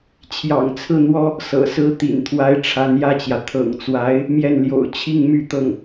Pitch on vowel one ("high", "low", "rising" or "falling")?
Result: low